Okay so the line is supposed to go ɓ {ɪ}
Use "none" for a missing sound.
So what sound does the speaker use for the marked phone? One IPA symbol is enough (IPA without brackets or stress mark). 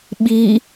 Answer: i